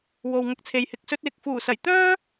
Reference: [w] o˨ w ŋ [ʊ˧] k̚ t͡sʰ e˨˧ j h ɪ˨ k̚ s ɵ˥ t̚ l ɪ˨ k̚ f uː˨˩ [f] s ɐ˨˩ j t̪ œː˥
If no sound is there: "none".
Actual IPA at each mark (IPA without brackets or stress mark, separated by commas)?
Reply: w, ʊ˧, none